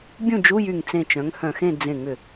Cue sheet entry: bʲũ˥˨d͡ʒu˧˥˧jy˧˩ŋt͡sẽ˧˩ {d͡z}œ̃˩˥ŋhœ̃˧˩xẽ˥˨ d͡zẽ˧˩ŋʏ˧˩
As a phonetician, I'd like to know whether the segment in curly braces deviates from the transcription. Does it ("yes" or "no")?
yes